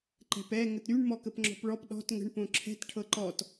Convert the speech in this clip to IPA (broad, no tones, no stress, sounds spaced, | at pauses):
ǃ ɛ̤ p ɛ ŋ ə t ɾ y ɳ m ɔ k ə p ŋ͡ǁ ɔ̤ p ɭ ɔ p ɗ ɔ̤ t ŋ ə̤ ɳ p õ ǁʰ ɛ̤ t ʈʰ ɤ ǃ ɔ t